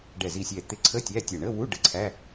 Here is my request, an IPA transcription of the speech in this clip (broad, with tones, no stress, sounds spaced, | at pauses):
ɖ ɛ˧˩ z i˧˩ sʲ ɛ˧˩ t̪ ɪ˧˩ ǀʰ ə˧˥˧ tʲ æ˧˥˧ tʲ æ˧˩ ɳ ə˧˥˧ w u˧˥˧ ɖ ə˧˩ ǀʰ æ˧˥˧